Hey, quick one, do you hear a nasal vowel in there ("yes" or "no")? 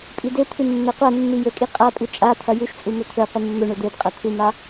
no